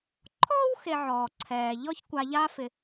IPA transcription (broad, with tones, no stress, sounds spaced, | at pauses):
ǃʰ ɔː˥ w x e˨ ʕ ɔː˩ ǀʰ ɛː˩ ʎ ɔ˥ ç kʷ a˨ ʎ aː˦ f ɪ˩